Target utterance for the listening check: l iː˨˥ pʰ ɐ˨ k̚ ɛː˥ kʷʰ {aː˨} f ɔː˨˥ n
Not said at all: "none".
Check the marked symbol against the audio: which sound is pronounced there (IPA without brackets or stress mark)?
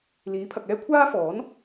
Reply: aː˥